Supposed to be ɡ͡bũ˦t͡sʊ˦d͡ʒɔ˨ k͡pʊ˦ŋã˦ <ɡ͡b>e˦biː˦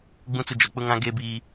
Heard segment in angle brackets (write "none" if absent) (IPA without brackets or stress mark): ɡ